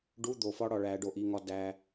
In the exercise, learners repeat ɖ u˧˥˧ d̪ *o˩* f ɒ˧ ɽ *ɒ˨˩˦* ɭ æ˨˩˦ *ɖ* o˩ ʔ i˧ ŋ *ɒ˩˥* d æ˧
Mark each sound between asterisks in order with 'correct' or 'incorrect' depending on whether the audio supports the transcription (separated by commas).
correct, incorrect, correct, incorrect